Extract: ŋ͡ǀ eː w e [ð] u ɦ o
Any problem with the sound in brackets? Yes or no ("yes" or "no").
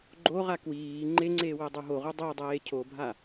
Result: yes